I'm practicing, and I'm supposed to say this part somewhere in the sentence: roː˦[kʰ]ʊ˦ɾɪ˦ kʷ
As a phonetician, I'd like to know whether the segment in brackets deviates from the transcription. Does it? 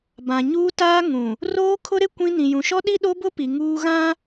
no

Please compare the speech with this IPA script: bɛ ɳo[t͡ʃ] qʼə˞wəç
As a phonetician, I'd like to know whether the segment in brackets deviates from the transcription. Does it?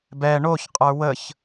yes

